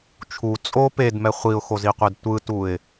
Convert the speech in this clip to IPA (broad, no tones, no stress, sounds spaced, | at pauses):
t͡ʃʰ u t͡sʼ o p e d m ɛ χʷ i ʊ̯ x o z i qʷ e d tʷ ɯ t u ɪ̯